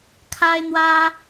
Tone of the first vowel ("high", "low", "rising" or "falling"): high